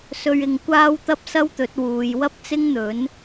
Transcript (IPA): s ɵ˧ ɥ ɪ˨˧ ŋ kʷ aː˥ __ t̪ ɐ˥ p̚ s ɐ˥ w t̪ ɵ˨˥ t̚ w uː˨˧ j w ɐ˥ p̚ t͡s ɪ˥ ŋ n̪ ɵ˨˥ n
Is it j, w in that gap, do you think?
w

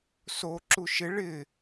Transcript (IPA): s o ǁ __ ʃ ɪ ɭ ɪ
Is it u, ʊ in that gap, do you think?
u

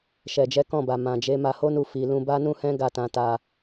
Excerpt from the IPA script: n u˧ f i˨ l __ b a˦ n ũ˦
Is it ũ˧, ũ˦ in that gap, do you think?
ũ˧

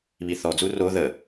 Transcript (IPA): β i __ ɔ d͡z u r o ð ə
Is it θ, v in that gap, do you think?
θ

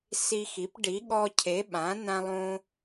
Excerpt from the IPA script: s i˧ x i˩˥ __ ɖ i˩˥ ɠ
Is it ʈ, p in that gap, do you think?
p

